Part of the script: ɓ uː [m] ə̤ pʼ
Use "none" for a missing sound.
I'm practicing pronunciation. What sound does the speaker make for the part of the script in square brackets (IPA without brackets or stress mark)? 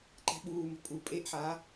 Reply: m